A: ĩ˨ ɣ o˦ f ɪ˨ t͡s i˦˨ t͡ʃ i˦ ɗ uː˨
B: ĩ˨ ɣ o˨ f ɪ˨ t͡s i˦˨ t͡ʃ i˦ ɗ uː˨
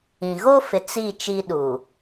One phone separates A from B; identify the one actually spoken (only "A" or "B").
A